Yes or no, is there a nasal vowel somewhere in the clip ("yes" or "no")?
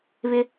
no